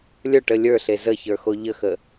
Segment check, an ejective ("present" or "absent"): absent